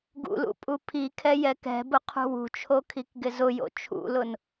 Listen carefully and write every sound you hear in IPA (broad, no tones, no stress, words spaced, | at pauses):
ɡṵlṵ pʼupʰikʰɛ jɛkɛ̤bʊ qʰṳwṳt͡ʃʰo kʰikɡɪzʊjo̰ t͡ʃʰṵlʊn